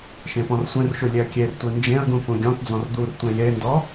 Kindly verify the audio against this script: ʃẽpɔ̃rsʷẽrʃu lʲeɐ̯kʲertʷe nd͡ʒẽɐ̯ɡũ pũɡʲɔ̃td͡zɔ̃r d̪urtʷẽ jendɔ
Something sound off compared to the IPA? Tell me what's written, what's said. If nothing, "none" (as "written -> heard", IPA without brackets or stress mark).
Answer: none